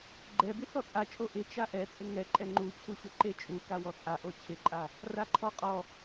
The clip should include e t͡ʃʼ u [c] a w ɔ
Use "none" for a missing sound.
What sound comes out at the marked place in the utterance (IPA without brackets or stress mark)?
k